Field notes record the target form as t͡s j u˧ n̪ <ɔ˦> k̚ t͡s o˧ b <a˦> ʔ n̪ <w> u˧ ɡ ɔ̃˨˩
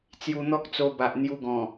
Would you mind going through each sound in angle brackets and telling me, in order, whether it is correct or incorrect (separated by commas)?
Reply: correct, incorrect, incorrect